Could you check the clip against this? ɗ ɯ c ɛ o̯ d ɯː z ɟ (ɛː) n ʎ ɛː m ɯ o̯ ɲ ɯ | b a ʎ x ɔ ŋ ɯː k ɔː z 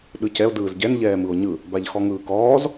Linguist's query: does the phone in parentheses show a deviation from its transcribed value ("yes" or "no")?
yes